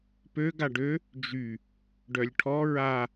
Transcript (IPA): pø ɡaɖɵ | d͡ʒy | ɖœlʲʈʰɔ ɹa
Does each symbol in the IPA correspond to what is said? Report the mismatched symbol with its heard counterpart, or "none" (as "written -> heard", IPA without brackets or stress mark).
ɵ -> ø